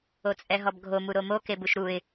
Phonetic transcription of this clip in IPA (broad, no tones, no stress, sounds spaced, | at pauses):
o t͡sʼ ɛ ɦ ɔ b ɡʱ o m u ɾ o m o k e b u ʃ ɾ u ɪ̯